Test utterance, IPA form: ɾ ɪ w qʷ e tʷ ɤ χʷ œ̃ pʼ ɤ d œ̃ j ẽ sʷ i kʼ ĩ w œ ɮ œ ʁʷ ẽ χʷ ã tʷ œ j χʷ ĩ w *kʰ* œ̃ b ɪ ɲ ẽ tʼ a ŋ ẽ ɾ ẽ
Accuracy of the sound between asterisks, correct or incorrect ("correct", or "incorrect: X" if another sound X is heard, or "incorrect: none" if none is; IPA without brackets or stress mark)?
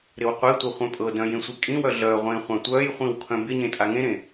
correct